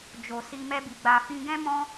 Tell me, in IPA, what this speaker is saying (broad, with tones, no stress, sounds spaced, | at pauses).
d͡ʒ o˨ s i˧ m ɛ˦ b i˧ ɡ͡b a˧ f ĩ˦ ɡ ɛ̃˦ m ɔ̃˦